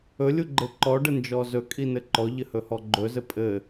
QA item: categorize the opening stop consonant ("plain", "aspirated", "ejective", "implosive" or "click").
click